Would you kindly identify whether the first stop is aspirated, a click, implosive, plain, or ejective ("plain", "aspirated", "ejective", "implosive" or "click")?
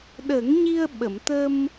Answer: implosive